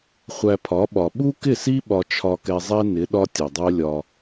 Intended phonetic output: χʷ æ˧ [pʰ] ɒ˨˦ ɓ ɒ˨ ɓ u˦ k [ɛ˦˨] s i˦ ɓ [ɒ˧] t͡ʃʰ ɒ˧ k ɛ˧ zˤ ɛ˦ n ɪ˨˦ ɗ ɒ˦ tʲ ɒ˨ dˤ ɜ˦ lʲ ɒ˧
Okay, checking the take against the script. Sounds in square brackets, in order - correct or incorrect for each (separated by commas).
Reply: correct, incorrect, correct